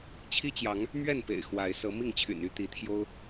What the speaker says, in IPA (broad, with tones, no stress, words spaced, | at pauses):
t͡ɕʰi˦t͡ɕjɑ˨˦ŋ | mɥɛ˥˨npḛ˨˩ɪ̯ xwa˨˦ɪ̯ sɤ˨˦mi˥˨ŋt͡ɕʰy̰˨˩n y˦t̪i˨˦t̪ʰjo˦ʊ̯